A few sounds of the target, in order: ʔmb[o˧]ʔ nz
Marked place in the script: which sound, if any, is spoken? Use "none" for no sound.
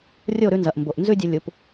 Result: o˨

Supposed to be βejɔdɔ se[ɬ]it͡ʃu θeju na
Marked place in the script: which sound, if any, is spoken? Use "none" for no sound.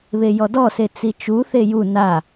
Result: t͡s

